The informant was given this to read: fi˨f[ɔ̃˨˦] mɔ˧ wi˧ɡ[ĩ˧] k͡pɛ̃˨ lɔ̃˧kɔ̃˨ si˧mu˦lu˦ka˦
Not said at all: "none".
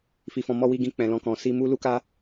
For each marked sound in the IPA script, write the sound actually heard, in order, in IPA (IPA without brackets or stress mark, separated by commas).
ɔ̃˨, ĩ˧